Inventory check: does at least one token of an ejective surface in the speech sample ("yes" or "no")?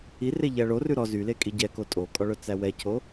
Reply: yes